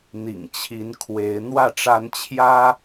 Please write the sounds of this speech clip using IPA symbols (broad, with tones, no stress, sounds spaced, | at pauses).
n̪ ḭ˨˩ ŋ t͡ɕʰ i˨˦ n kʰ w e˨˦ ɪ̯ n̪ w ä˥˨ ʈ͡ʂ a˦ n t͡ɕʰ j ä˦